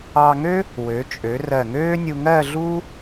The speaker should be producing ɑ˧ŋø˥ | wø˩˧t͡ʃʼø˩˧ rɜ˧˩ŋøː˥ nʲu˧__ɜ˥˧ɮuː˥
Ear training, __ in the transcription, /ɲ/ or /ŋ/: ŋ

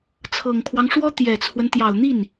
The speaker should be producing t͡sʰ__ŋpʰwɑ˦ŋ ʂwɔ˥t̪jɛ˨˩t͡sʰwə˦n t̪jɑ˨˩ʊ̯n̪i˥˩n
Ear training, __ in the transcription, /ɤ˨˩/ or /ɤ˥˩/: ɤ˨˩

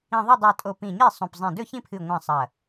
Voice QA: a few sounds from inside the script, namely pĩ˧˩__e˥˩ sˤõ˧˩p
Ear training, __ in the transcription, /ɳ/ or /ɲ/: ɲ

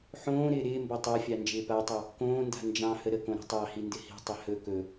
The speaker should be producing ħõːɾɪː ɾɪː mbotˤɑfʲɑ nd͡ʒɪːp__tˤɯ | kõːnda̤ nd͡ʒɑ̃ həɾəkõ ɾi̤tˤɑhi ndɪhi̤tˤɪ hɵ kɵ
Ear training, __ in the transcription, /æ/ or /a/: a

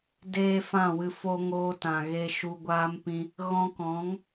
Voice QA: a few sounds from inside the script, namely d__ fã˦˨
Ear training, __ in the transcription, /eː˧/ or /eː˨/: eː˧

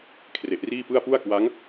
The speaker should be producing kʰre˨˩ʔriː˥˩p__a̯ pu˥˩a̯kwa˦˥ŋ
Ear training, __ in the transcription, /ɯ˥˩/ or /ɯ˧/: ɯ˥˩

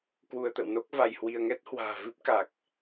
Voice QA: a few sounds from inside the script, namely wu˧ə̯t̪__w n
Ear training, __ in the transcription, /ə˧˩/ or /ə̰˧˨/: ə̰˧˨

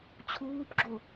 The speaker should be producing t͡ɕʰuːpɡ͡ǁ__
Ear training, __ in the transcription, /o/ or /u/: o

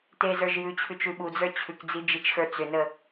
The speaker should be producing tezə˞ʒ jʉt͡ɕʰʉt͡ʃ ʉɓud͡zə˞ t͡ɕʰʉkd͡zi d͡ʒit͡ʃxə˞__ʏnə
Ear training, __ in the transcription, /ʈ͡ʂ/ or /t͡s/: t͡s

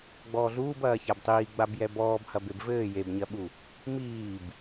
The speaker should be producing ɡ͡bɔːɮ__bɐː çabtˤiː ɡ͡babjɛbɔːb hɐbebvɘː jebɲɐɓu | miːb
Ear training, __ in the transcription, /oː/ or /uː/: uː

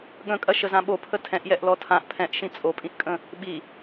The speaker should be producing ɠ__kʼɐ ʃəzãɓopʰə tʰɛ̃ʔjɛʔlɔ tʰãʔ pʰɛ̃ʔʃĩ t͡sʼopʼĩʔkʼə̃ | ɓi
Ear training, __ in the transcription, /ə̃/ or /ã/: ə̃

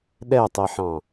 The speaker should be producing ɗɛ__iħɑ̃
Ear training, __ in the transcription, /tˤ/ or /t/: tˤ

